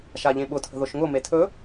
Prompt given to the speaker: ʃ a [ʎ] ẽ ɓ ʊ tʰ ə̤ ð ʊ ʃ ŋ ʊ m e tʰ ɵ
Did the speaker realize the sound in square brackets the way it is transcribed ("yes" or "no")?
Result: yes